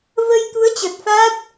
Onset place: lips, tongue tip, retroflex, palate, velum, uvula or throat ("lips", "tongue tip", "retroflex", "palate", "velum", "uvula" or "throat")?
lips